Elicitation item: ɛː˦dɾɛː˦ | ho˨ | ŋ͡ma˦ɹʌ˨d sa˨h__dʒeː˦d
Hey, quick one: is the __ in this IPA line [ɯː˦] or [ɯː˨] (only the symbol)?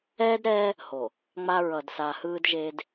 ɯː˦